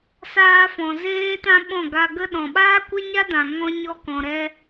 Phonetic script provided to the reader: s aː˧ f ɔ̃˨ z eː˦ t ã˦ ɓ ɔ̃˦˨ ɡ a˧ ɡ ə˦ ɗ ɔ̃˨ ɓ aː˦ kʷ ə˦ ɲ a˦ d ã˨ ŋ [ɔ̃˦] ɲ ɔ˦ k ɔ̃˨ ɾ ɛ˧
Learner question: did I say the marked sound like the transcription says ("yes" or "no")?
yes